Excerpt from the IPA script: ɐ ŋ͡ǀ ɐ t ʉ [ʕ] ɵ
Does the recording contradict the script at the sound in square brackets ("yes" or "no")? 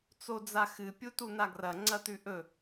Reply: yes